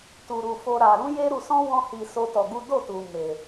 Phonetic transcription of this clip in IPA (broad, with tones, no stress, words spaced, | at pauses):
tu˧ɾu˧fo˦ ɾa˧ ɾũ˦je˦ɾu˧sɔ̃˦ wɔ̃˦hi˧ so˦tɔ˧ɡu˦ do˦˨tu˨ me˨